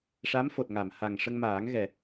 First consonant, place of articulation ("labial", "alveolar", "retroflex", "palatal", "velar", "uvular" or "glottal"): retroflex